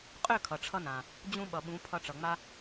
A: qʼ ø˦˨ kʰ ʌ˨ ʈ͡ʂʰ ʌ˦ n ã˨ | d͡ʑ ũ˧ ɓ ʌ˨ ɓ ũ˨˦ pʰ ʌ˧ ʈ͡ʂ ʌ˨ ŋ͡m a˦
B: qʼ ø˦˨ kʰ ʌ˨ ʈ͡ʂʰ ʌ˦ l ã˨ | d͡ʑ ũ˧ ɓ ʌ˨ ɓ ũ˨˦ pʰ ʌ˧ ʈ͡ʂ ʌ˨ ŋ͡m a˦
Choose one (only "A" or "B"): A